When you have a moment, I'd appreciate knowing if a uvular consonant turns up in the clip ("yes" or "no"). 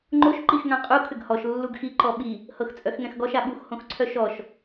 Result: yes